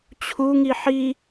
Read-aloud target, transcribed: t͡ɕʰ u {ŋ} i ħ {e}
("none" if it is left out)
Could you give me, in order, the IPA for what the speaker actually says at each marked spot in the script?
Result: ŋ, i

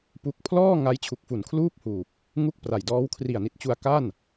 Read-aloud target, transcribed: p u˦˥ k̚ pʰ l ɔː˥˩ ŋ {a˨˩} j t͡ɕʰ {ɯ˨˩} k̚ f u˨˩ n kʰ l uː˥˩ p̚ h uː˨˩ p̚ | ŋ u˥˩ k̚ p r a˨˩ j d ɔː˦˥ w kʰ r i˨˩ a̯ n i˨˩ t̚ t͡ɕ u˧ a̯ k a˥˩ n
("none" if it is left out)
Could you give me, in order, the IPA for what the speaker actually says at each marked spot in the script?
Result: a˦˥, u˨˩

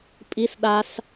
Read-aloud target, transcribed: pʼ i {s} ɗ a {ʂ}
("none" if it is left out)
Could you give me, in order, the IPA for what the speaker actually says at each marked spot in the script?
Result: s, s

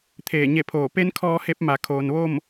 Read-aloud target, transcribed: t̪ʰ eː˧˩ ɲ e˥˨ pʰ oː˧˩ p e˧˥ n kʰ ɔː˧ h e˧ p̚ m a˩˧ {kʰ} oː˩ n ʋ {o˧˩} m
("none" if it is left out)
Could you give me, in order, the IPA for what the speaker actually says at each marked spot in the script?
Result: kʰ, o˥˨

